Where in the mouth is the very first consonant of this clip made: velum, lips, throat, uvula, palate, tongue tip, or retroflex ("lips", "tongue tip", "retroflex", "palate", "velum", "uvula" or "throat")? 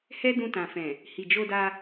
throat